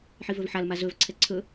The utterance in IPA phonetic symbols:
ħ i v ɵ v ħ a l m a z ɵ v ǀʰ ɛ ǀʰ ɵ

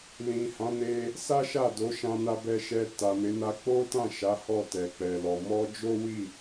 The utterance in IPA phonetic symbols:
l ĩ˨ h ã˨˦ n e˧ | s a˦ ʃ a˦˨ d o˨˦ ʃ ã˧ n a˧ b ɛ˧ ʃ ɛ˧ t a˨ m e˨˦ n a˧ k͡p o˦ t ã˦˨ ʃ a˨˦ h ɔ˦˨ t ɛ˨ k͡p ɛ˨ l ɔ˨ m ɔ˧ d͡ʒ o˦ w i˦˨

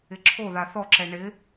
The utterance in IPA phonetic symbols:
ɪ ǁʰ o ð a θ ɔ ǁ ɛ ɳ ɪ

